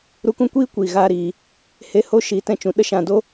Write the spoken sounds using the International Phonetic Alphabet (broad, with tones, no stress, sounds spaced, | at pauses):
ɾ u˧ k ũ˦ kʷ iː˦ kʷ iː˨ ɣ aː˧ ɾ iː˨ | h e˧ h o˦ ʃ iː˨˦ t ɛ̃˧ t͡ʃ ũ˨ ɗ ə˦ ʃ ã˨ d o˦